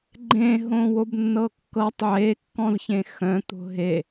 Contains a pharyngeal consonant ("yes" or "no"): yes